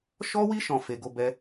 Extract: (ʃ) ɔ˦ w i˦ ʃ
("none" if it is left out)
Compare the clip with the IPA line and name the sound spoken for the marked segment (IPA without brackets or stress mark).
ʃ